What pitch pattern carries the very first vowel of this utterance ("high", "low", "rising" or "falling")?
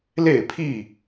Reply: falling